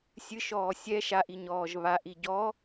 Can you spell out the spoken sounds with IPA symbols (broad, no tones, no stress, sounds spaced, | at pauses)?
sʲ ɨ ʃ ɔː sʲ ɛ ʃ a ʔ i ɲ ɔː ʒ β a ʔ i ɟ ɔ